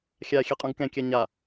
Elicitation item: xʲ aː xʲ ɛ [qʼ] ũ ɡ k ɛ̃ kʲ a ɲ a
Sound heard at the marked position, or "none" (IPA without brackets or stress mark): qʼ